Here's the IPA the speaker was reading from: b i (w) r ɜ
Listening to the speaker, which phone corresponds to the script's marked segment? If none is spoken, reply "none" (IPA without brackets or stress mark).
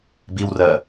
w